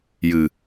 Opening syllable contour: low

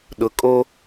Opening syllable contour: rising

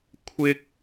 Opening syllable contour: high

